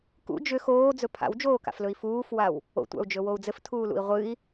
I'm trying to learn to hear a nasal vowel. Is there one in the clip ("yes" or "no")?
no